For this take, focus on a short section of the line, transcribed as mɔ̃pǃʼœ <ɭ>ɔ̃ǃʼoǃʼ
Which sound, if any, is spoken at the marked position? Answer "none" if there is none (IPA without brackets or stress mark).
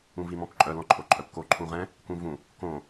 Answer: l